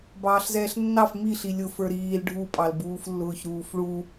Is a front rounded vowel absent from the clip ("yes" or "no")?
yes